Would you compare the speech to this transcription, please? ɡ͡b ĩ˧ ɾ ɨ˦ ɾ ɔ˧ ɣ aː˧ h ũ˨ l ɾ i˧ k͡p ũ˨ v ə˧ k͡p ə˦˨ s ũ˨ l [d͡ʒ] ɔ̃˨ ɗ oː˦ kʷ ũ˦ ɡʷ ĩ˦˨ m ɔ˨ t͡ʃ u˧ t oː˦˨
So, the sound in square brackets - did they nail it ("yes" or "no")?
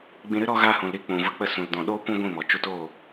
no